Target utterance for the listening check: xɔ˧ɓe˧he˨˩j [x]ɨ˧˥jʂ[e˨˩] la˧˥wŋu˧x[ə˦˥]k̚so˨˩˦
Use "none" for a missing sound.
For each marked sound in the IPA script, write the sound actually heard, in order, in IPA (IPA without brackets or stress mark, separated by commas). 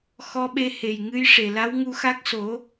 ŋ, e˨˩, a˦˥